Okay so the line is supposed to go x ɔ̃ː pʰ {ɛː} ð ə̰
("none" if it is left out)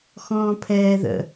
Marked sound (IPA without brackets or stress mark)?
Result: ɛː